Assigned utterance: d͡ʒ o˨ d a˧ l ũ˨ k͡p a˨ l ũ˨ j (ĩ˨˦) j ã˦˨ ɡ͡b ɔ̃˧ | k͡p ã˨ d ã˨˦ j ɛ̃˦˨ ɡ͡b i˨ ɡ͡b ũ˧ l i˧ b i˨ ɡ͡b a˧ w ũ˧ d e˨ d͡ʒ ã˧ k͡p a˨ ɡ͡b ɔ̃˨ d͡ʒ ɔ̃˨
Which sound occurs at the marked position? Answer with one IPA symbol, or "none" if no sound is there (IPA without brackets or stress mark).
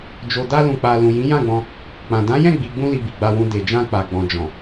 ĩ˨˦